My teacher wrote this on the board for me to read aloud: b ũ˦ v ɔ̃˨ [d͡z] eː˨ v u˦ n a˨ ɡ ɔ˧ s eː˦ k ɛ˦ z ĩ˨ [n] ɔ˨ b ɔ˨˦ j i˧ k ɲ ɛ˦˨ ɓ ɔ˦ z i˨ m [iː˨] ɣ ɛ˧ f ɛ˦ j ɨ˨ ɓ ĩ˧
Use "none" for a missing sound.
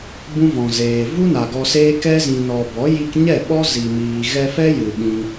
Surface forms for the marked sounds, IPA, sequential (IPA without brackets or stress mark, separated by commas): z, n, iː˨